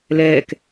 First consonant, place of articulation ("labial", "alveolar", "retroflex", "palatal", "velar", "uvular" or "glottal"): alveolar